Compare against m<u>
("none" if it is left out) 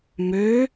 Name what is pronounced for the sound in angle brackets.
ø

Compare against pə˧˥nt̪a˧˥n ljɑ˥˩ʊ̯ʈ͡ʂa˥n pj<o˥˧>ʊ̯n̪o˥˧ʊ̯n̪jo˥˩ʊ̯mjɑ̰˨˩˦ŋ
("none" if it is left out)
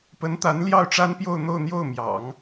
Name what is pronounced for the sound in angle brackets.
o˥˧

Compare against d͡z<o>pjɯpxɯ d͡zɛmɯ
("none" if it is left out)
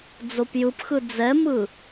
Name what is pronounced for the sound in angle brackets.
o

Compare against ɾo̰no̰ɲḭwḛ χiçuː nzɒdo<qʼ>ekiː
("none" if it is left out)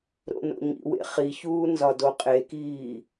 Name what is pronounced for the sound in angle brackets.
qʼ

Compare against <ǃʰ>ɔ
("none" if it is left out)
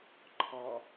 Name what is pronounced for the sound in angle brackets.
ǃʰ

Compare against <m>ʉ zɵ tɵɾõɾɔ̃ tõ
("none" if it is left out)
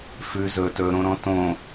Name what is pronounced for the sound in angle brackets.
f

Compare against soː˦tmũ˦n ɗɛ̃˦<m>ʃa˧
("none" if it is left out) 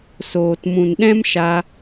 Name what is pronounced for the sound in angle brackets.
m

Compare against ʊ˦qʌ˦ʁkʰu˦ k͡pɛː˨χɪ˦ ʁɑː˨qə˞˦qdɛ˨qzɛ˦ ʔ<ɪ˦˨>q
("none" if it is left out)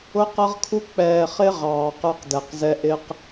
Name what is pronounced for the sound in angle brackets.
ɪ˦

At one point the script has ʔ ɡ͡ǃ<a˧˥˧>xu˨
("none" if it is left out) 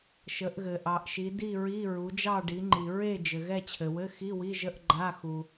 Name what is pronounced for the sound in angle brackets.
a˧˥˧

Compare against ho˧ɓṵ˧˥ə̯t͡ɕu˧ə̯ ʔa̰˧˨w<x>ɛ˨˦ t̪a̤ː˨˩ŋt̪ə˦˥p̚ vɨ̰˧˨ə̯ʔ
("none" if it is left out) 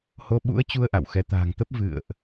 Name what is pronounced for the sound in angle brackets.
x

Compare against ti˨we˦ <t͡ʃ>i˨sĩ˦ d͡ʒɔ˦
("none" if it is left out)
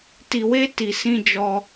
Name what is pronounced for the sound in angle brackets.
t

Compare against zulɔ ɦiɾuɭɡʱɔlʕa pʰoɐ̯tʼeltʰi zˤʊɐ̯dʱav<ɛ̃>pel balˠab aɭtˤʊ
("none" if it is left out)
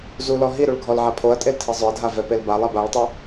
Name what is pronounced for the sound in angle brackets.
ɛ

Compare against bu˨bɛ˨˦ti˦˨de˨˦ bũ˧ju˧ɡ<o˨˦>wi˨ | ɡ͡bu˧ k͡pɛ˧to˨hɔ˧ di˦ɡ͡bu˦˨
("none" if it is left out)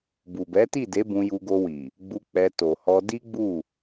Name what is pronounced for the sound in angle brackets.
o˧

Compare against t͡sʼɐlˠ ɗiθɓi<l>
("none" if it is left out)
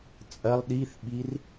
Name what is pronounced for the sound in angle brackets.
r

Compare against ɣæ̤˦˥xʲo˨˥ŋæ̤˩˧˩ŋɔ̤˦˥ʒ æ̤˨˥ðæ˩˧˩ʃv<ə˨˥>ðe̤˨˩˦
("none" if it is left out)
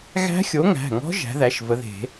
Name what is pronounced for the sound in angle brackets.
ə˨˥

